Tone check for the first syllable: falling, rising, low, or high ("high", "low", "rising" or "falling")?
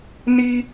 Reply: high